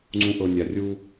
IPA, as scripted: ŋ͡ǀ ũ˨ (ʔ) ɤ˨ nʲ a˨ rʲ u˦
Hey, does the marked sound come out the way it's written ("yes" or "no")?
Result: yes